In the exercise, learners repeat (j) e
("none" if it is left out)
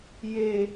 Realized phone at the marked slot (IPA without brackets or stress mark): j